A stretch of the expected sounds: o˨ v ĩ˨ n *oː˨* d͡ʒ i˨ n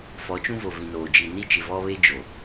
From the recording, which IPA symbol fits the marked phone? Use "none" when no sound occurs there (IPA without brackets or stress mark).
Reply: oː˨